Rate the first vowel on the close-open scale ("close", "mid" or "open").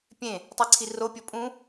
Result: mid